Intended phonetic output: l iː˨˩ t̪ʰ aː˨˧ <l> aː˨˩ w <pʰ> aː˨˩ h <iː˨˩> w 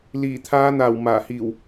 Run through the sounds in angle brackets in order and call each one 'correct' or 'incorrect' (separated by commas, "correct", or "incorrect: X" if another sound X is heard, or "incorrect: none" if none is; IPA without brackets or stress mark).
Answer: incorrect: n̪, incorrect: m, correct